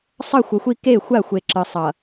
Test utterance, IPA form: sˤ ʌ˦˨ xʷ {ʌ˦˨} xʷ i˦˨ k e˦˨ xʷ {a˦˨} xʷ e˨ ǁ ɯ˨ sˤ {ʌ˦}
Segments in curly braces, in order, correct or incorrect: incorrect, correct, incorrect

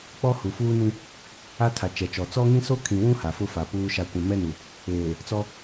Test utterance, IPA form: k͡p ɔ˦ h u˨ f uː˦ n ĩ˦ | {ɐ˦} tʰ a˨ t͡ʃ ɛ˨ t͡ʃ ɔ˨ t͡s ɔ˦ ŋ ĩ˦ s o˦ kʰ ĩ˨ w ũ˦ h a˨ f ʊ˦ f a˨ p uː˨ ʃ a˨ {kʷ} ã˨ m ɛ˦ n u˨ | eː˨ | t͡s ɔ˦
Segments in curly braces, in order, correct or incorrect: incorrect, correct

